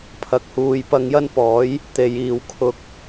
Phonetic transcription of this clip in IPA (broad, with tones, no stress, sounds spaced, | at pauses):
pʰ ɐ˧ k̚ h uː˧ j p ɐ˧ ŋ j ɐ˥ n p ɔː˨˥ j | t̪ e˨ j iː˨ w kʰ ʊ˧ k̚